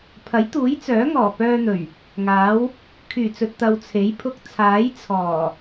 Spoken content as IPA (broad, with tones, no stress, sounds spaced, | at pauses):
pʰ ɐ˨˥ j t̪ uː˨˥ j t͡s œː˨˥ ŋ ɔː˨˩ p œː˧ n̪ ɵ˨˩ ɥ | ŋ aː˨˥ w | kʰ yː˨˩ t͡s ɵ˨ t̚ t̪ ɐ˨ w t͡sʰ e˨˥ j pʰ ʊ˧ k̚ t͡sʰ aː˨˥ j t͡sʰ ɔː˨˩